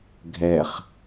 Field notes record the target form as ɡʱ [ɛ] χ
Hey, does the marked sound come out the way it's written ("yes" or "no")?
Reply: yes